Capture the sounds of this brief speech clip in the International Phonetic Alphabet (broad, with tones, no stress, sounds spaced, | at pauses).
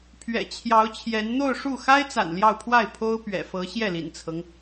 pʰ ɥ ɛ̰˨˩ t͡ɕʰ j ɑ˧˥ ʊ̯ t͡ɕʰ j ɛ˧˥ n n̪ o˥˧ ʊ̯ ʂ u˥˩ x a˥ ɪ̯ t͡s a̰˨˩ n l j ɑ˥˧ ʊ̯ pʰ w a˥˩ ɪ̯ pʰ o˥ ʊ̯ p ɥ ɛ̰˨˩ f ɤ˧˥ ɕ j ɛ˥˩ l ḭ˨˩ n t͡sʰ ɤ˦ ŋ